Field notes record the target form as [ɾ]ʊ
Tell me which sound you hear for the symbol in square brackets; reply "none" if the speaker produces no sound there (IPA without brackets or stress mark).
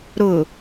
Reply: ɾ